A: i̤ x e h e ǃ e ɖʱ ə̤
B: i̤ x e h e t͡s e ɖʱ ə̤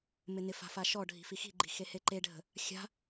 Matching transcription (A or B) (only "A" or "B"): A